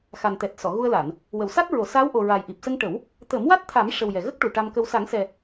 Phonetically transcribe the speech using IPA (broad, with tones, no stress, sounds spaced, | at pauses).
x a˨˩ n t̪ ɛ˨˩ t̚ s ɔ˨˩˨ ɣ u˧ ə̯ l a˨˩˨ n | w ə˨˩˨ w s a˦˥ t̚ ɹ o˨˩˨ s aː˧˥ w ʔ o˨˩ ɹ a˨˩ j ʔ i˨˩ p̚ s ə˧ ŋ ʈ ə˨˩˦ w | t̪ ə˨˩˦ m w a˦˥ t̚ t̪ʰ a˨˩˦ m ʂ ə˨˩ w j ɛ˨˩ ɣ ə˦˥ k̚ ʈ u˨˩ ʈ a˧ m k ə˧ w s a˨˩˦ ŋ s ɛ˨˩